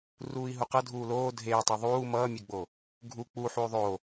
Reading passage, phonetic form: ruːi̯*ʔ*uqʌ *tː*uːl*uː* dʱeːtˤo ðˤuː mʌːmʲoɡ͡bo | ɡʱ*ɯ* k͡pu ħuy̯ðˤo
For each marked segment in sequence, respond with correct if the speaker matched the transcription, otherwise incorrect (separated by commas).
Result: incorrect, incorrect, incorrect, incorrect